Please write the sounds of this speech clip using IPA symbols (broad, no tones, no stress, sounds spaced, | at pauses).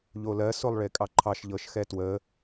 ʎ o l ɜ s o lˠ ɭ e kʼ ɑ ǃʰ ɑ ʃ ʎ ɤ ʃ x ɛ t w ə